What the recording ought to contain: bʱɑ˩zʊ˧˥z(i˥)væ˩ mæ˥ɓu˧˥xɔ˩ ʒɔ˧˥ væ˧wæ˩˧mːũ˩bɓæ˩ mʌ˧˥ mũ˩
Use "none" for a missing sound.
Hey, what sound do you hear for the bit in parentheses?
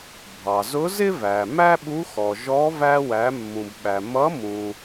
ɪ˥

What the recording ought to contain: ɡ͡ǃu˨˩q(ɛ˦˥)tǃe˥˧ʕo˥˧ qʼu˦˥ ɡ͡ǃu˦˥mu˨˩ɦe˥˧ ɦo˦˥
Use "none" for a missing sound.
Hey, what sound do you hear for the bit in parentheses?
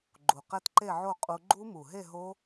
ɛ˦˥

